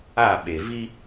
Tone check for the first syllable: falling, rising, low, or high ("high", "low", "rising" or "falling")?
falling